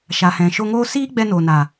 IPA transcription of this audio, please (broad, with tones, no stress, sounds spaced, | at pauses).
ʃ a˨ h ɛ̃˨ ʃ o˧ ŋ oː˦ s iː˦ ɡ͡b ɛ˧ n oː˨ n a˨